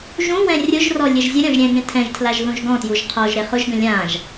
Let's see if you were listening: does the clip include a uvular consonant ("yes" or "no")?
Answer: yes